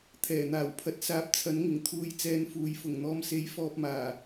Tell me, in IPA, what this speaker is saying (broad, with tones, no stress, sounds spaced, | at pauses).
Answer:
t̪ʰ ɛː˨˩ n̪ aː˨˩ w pʰ ɐ˧ t̚ s aː˧ p̚ t͡sʰ ɐ˨˥ n ŋ ɪ˨˩ ŋ t̪ʰ uː˧ j t͡s ɛː˧ n f uː˨˧ j f ʊ˨˩ ŋ n̪ ɔː˧ m s e˨˥ j f ɔː˧ p̚ m aː˨˩